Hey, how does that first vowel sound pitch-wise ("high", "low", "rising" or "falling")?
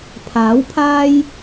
rising